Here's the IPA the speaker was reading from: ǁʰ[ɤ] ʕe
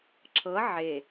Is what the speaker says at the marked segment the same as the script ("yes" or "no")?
yes